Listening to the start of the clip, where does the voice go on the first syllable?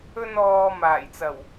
high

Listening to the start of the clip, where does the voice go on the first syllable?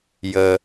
low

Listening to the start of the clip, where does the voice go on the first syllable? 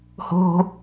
high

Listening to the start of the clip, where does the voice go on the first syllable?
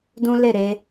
high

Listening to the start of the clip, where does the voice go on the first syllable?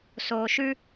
low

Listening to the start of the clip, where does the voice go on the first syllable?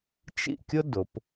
falling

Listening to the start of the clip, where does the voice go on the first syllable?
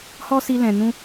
high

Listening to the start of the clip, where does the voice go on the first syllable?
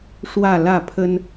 falling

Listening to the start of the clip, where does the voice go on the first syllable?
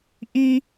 high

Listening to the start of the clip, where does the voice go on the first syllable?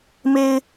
high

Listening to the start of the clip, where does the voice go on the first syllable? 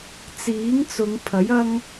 rising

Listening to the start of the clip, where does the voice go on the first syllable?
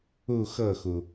falling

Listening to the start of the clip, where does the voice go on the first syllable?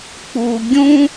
low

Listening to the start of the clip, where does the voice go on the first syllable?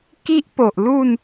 high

